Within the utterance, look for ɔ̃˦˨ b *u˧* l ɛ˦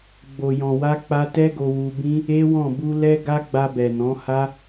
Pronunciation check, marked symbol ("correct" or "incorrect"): correct